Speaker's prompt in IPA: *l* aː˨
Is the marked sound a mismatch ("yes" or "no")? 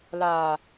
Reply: no